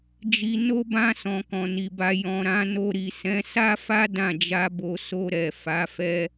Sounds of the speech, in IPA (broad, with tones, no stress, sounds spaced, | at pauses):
d͡ʒ i˧ n o˦ b ã˦ s ɔ̃˧ k ɔ̃˨ n i˨ b a˧ j ɔ̃˨ ɾ ã˨˦ n o˧ ɾ i˨ s ɛ̃˨˦ s a˦ f a˦ d ã˦˨ d͡ʒ a˧ b o˨ s o˧ ɾ ɛ˨ f a˨˦ f ɛ˦